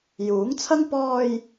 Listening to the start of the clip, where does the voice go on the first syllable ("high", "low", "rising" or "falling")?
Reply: rising